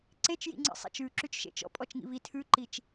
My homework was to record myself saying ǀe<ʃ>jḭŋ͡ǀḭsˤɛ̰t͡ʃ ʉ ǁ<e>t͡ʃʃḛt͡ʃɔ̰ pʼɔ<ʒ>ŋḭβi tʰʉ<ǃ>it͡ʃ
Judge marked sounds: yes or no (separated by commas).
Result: no, no, no, yes